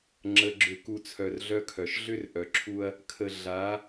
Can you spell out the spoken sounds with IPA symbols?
ŋ͡ǁ ə˨ ɡ͡ǁ ʏ˨ k u˨ t͡sʰ œ˨ r ɮ œ˦ kʰ œ˨ ʃ ɮ ʏ˦ r ʔ œ˨ ǁʰ u˦ ɐ̯ | kʰ ə˨ ɮ a˨˦

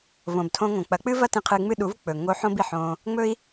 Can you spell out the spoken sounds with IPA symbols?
v õ˨ b tʰ õ˧ ŋ õ˨ k͡p ɐ˨˦ k͡p ɨ˦ v ɐ˦ t ĩ˧ qʰ ɨ˧ ŋ͡m ɨ˦ ɗ u˨˦ v k͡p ɵ˨ ŋ o˧ ħ õ˦ b i˨ ħ õ˧ | ŋ͡m ɵ˦ i̯

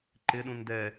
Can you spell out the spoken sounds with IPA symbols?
ǃ ɪ ɗ ũ n d ɛ

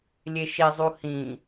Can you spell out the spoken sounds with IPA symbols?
lʲ e ʃ i zˤ u h ĩ

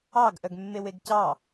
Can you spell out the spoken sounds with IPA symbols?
ɑ ɡ ʔ œ ɡ mː e w e ɡ c ɑ

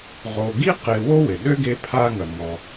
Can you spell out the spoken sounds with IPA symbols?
ʁ o˨ ɡ i˥ q e˨ w o˥ w ɪ˩ ɗ ø˥ ɡ e˦ pʰ a˦ ŋ ɐ˨ ŋ ɔ˨

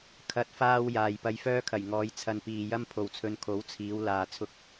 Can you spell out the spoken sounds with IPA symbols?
kʰ ɐ˨ t̚ f aː˧ w j aː˨ j p ɐ˧ j f œː˥ kʰ ɐ˨˩ j ŋ ɔː˨˧ j t͡sʰ ɐ˨ n p iː˨ j ɐ˥ m pʰ o˨ w t͡sʰ ɵ˧ n kʰ o˨˥ w t͡sʰ iː˨˧ w l aː˧ t͡sʰ ʊ˥ k̚

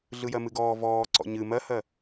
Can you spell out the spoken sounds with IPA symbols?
ɮ ɯ j ɜ m ɨ ɡ ɔː v ɔː ǀ ɔ̰ ɲ ɨ m ɜ h ɜ

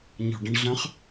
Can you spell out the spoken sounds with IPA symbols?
ɲ ɔ̤ ɖ ə̃ ɳ ɮ ə̃ χ

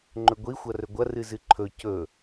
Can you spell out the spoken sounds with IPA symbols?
ŋ͡ǃ ɵ ɡʷ i xʷ ɐ r ɵ ɡʷ ɐ r ɨ z ɨ ǃʰ ɵ c ɵ

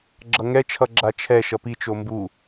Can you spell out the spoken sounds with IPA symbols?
ɡ͡ǁ ʌ ŋ ɛ t͡ʃʰ ʌ ɡ͡ǁ a t͡ʃʰ ɛ ʃ ʌ p i t͡ʃ o m b u

